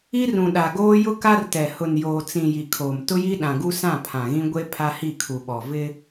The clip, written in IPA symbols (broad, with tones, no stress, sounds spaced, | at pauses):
i˦ r ũ˨ ɗ a˨ ɡ oː˦ j ʊ˦ k a˦ r t ɛ˨ h ʊ˨ n j oː˨ t͡s ĩ˨ j i˨ kʰ oː˨ m t ʊ˦ j i˦ ɗ ã˨ ɡ u˦ s ã˦˨ pʰ ã˨ ɣ ĩ˦ ɡʷ e˦ pʰ a˦ h i˦˨ kʰ u˨ ɓ ɔ˨ v ɪ˦